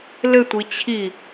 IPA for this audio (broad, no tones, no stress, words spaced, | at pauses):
lɘtʷi t͡ɕʰi